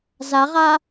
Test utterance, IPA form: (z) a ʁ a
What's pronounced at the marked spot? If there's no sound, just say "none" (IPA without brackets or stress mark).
z